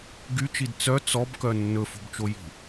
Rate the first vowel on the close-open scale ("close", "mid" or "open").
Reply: close